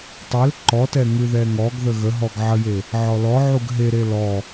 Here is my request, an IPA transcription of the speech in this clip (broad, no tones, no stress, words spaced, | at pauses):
tˤel ǃɔtɛ ŋʉðɛŋɔɡðə ɣəɦɔɡ ʕəje | ʕɔlɔʕuɡ ɦeɾe lɔ